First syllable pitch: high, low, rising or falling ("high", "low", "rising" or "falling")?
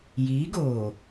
rising